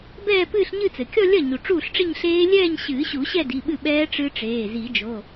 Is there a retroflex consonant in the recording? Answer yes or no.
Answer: yes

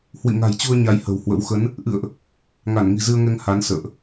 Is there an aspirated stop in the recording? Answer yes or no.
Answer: no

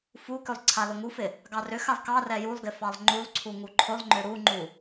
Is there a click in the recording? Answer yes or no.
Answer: yes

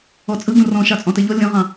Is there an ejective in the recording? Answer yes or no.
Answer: yes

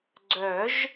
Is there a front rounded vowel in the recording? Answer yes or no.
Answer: yes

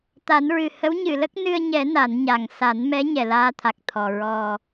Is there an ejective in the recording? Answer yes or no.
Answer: no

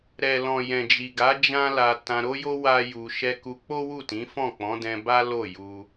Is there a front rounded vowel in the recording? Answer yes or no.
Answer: no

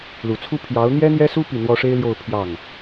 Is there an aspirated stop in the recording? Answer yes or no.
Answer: yes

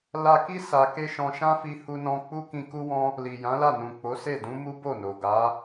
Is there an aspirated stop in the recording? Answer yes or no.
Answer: no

